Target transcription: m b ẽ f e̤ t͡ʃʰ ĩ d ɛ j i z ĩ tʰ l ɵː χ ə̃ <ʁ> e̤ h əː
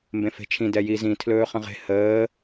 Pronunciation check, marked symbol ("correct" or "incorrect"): correct